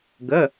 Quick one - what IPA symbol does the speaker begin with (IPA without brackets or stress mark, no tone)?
ɡ